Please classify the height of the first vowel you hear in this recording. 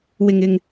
high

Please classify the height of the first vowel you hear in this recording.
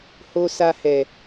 mid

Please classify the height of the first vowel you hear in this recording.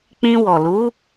high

